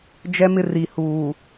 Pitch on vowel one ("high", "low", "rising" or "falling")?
high